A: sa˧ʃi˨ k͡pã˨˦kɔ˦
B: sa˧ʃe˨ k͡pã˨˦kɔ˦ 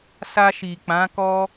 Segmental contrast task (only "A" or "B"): A